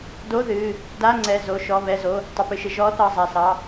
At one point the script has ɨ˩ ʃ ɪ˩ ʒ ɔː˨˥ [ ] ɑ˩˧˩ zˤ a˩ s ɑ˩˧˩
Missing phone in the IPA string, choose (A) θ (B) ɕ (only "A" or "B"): A